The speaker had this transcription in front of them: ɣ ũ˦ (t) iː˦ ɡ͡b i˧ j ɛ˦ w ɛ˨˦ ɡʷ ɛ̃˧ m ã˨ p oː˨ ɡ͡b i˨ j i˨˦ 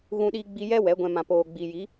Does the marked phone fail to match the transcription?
yes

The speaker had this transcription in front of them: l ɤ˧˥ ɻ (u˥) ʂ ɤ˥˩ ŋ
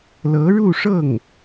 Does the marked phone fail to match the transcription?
yes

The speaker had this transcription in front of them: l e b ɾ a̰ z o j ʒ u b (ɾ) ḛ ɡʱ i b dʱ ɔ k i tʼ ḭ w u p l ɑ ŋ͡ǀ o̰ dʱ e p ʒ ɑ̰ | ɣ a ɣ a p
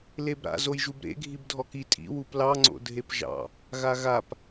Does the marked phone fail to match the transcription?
no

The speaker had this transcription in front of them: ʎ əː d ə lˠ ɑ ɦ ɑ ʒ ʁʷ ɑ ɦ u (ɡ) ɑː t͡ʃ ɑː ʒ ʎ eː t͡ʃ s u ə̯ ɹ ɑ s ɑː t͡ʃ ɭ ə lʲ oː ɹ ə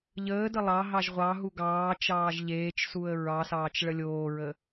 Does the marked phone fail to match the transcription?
no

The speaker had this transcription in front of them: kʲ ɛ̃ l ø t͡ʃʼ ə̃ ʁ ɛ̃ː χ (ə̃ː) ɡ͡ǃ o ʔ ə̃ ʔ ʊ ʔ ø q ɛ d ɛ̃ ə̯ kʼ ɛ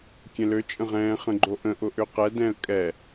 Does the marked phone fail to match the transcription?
yes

